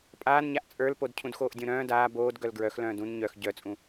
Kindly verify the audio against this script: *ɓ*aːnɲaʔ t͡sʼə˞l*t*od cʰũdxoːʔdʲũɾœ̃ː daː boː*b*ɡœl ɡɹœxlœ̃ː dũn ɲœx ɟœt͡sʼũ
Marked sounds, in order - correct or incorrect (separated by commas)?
incorrect, incorrect, incorrect